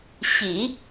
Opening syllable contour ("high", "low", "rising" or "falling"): low